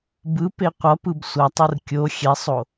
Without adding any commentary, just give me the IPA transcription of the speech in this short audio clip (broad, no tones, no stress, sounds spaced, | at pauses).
b ɯ p e qʷ ʌ p ɯ b sʷ ʌ tˤ ɯ r kʲ o xʲ ɛ sˤ o